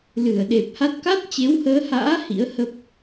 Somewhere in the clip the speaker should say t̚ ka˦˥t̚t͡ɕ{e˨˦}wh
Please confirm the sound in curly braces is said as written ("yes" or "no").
yes